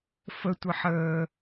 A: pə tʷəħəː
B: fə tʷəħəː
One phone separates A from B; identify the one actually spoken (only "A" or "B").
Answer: B